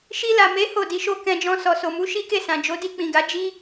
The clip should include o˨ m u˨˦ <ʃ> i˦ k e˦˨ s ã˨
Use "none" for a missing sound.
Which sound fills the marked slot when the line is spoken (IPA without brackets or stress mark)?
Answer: ʃ